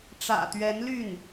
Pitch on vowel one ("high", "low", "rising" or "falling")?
low